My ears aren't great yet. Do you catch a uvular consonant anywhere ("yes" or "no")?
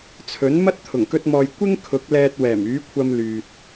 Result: no